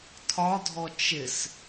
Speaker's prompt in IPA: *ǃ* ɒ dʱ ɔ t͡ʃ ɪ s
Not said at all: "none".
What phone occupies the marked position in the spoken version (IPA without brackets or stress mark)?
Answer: tʰ